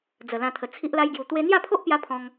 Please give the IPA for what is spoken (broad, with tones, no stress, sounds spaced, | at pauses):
d͡z ə˨˩ l ã˧ t̪ʰ ə˨˩ t͡sʰ i˦ ʔ l a˦ j ɡ j u˧ t̪ w e˦ n̪ j a˥˧ pʰ o˦ ʔ p j a˧ pʰ ɔ̃˧ ŋ